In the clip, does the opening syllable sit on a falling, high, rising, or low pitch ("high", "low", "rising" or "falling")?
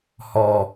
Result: low